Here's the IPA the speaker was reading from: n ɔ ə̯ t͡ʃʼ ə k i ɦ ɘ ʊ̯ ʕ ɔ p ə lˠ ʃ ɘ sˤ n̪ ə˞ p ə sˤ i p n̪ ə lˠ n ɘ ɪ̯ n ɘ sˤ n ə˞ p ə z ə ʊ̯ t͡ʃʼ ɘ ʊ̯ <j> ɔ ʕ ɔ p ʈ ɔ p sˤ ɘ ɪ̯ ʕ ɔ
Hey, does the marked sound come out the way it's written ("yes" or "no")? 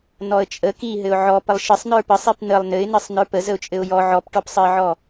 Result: yes